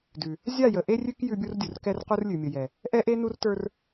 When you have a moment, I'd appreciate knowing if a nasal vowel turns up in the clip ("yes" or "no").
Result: no